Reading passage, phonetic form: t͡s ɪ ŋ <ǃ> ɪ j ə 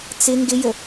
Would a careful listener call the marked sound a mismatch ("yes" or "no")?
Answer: yes